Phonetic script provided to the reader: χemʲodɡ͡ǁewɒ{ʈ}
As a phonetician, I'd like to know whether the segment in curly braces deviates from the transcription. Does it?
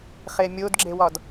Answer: yes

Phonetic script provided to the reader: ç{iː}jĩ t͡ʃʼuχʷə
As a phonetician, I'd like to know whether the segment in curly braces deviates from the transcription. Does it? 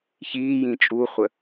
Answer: no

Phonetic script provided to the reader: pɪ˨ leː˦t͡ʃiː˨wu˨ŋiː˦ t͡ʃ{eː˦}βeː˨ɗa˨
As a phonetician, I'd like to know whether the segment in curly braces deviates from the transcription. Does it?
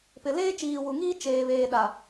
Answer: yes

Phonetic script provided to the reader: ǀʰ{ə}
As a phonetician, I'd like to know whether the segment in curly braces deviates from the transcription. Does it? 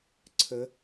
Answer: no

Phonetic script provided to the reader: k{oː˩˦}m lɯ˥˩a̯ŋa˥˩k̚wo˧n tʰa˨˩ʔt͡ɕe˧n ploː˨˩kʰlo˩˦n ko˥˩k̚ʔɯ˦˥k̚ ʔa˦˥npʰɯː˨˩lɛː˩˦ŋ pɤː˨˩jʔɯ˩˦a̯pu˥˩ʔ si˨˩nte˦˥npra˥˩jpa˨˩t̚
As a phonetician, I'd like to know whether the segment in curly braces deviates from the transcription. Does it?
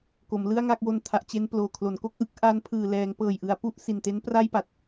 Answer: yes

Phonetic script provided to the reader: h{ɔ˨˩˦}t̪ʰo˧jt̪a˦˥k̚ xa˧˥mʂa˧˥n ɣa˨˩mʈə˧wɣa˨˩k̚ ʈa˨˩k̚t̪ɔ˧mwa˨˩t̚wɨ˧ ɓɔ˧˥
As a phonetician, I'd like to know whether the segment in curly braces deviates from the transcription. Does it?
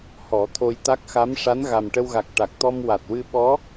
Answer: no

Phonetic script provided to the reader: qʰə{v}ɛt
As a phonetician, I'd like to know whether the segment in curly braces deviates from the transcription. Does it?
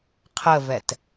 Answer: no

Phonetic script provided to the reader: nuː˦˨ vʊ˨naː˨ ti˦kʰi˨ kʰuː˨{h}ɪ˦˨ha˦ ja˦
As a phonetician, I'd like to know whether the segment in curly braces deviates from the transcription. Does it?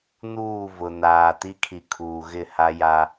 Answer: yes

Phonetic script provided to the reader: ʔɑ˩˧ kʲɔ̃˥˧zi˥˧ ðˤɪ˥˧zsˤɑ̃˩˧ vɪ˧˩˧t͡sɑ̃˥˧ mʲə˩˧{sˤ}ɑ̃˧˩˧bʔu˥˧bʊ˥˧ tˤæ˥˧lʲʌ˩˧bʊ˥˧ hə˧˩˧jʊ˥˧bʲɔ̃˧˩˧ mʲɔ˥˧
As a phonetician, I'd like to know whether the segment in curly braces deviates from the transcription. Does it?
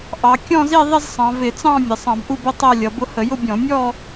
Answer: no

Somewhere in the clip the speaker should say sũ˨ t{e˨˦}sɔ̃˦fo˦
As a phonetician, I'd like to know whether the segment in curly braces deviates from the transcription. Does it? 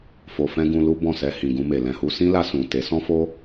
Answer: no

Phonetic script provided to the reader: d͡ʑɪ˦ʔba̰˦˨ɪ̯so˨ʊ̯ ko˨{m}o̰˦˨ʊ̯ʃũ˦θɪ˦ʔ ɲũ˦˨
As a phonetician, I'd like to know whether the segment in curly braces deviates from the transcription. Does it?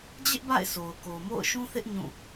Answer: no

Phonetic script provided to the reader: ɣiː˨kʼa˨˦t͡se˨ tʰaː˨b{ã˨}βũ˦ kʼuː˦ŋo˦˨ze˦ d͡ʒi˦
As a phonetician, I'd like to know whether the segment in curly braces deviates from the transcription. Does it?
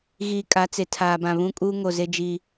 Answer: no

